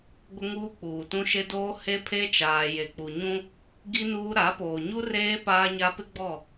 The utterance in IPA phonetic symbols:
ɡʷɪ˦ŋuː˦k͡puː˨tũ˦ ʃe˦doː˦ he˦pʰe˦t͡ʃaː˨ je˨k͡pu˨ɲũ˦ | ɡi˦nuː˦ ɾa˨˦poː˨ɲu˦ reː˦ paː˦ɲa˦ pɪ˦ɡ͡bɔ˦˨

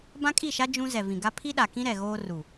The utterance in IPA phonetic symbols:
bã˦kʼi˦˨ʃa˦ d͡ʒũ˦ zɛ˨vĩ˨ɡa˦ pʰi˦ɗa˨kĩ˦ ɾɛ˨ɣoː˦ ru˨

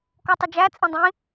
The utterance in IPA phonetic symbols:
kɔtˤəd͡ʒæ t͡sʼĩdˤĩ

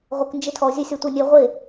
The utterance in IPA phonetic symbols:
ʁʷək nd͡ʒɪtʰɔ zʲœsʲɒtʷœnʲɛ ʁʷe

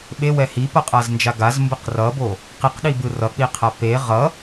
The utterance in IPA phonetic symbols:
ɓewɛ hipʌqʼaznd͡ʒa ɡazmbɯq rʌbo | qiqɗibɯ rʌk͡piqʰa pe ʁʌ

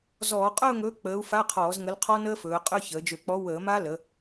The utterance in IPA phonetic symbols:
zɔː˧˩˧qʼʊː˥˧ŋɵː˨˥ k͡pəː˨˥u̯fa˧˥˧qʰɔː˧˩˧z ŋə˨˥lqʰɔ˦˥nəː˦˥ fɵː˩˧qʼø˧˥˧ çəː˩˧d͡ʒø˧˩˧k͡pɔ˨˥ wəː˧˩˧ma˦˥lə˩˧

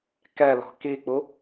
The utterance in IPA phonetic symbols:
kɛlɔ̤ kik͡pu

